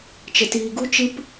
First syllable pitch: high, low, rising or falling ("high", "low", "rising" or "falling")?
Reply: low